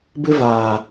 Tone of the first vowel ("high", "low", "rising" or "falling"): high